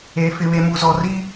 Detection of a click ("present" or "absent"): absent